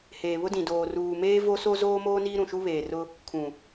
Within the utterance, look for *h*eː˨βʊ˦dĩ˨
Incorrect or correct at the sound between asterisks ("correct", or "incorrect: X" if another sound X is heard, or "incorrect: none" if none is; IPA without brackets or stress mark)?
correct